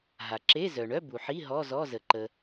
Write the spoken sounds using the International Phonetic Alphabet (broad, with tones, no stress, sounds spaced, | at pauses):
ɦ a˩ ǁ e˧˥˧ z œ˩ ɳ œ˧˥˧ b u˩ ħ i˧˥˧ ɦ ɔ˧˥˧ z ɔ˧˥˧ z ə˩ ǃ ə˩